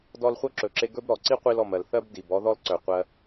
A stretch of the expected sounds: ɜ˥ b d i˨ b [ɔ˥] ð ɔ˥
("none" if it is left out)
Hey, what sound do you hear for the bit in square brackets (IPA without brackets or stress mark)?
ɔ˥